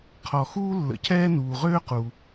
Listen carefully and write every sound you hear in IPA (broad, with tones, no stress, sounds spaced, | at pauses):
qʰ ɔ˩ x uː˥ lː ə̰˩ cʰ ɛː˥ n uː˩ ʁ øː˥ q u˩